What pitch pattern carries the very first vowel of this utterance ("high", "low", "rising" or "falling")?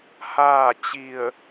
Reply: falling